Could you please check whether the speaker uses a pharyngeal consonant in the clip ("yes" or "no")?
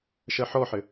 yes